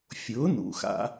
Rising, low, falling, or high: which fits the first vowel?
rising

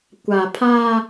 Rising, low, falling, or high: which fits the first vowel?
low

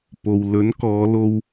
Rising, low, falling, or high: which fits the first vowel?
low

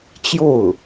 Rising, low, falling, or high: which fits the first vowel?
falling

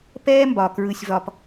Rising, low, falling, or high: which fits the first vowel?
high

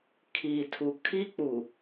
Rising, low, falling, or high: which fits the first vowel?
low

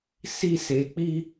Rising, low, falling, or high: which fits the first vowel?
high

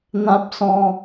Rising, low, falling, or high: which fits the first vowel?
high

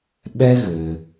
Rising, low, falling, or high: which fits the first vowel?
high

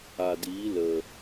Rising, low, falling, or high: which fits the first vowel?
low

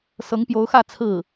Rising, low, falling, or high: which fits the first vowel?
rising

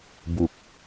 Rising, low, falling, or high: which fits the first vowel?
low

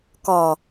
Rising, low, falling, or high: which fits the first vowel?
low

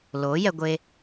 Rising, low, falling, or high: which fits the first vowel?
rising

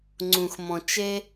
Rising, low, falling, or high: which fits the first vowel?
low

